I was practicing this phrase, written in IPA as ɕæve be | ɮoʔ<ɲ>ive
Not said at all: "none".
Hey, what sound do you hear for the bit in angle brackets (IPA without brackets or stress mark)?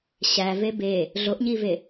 ɲ